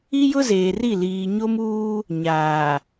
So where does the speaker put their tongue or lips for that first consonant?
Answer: palate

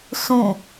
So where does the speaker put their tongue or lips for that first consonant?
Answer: tongue tip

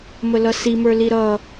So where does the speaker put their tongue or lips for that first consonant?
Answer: lips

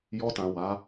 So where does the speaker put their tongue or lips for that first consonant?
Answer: palate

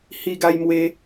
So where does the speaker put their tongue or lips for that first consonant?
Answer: throat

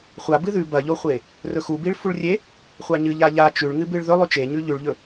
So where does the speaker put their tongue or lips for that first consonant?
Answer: uvula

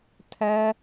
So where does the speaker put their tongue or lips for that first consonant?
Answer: tongue tip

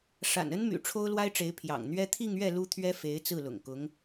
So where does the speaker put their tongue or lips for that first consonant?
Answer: retroflex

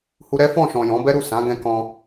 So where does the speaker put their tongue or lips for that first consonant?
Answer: throat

